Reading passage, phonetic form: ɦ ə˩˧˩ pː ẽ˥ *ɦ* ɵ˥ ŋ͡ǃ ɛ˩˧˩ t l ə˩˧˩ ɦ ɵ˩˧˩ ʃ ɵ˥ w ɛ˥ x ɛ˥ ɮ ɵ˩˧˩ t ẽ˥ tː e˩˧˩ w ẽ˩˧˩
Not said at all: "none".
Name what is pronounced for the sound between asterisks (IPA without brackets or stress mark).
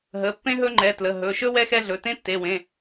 ɦ